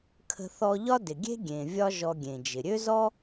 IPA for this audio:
kʰə̤˧θɔ˧ ʎɒ˥dɪ˩ɡʲe̤˥ɡʲẽ˩ vʲɒ˥ ʒɔ˧ɡʲẽ˩d͡ʒɪ˩ ɾʲø˥zɔ˥

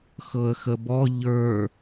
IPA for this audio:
xɤə̯xəbɔ ʎə˞

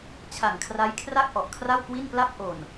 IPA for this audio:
t͡ɕʰa˨˩ŋkʰra˦˥jkʰra˥˩k̚ ʔɔ˨˩ʔkʰra˥˩wkwi˥˩npla˥˩p̚ ʔo˨˩n

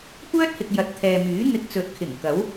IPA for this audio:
kʷœː˥t̚hɪ˨k̚ jɐ˨˥t̚t̪ʰɛː˨ myː˨˥n̪ɪ˧k̚t͡sɵ˨˥t̚kʰɪ˨˩ŋ kɐ˨˥w

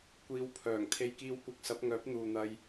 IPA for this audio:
kʷiː˨˧w pʰœː˨˩ŋ t̪ʰe˧jkiː˧wkʷɐ˧k̚sɐ˨˥p̚ ŋœː˨˥p̚n̪uː˨n̪ɐ˧j

